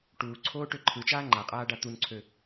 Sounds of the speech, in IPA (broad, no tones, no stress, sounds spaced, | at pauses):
ʈ uː ǀʰ oː ʈ ø ǃʰ ɯ t͡ʃ aː ŋ͡ǃ a qʼ aː ɖ a t̪ u n ǀʰ ø